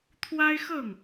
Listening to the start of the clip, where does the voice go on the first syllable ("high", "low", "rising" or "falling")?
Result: high